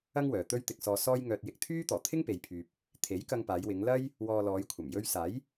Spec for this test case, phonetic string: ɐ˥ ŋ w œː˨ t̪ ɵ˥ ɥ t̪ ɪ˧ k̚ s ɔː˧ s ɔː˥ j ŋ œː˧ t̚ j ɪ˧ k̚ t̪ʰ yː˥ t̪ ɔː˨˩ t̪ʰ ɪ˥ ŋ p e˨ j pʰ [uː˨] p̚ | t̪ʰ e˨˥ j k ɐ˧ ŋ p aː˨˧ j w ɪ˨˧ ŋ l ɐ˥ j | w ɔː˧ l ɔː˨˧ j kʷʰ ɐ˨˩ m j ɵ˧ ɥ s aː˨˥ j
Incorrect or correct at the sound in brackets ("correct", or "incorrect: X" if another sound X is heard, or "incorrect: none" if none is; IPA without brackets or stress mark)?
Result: incorrect: yː˨